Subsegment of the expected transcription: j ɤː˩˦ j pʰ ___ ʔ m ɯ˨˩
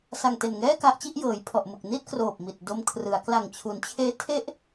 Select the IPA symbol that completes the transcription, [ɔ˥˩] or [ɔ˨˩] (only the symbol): ɔ˨˩